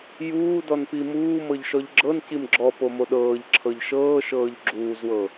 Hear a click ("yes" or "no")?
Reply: yes